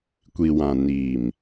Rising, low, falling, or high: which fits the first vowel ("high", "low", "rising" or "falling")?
low